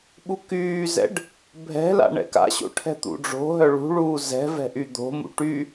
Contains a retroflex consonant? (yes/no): yes